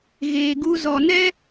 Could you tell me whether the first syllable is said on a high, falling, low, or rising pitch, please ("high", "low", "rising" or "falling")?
low